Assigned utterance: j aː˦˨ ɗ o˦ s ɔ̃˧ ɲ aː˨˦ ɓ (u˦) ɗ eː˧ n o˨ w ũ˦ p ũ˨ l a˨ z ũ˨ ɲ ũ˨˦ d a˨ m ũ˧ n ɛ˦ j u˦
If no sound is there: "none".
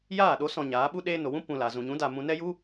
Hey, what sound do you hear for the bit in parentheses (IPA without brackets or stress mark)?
u˦